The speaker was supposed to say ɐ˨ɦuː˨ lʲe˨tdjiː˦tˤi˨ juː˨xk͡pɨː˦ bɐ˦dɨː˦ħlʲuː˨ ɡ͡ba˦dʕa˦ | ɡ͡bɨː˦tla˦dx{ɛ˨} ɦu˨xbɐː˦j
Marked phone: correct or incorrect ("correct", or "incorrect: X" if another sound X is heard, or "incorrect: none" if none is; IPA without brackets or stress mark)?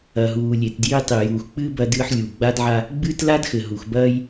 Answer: incorrect: ɘ˨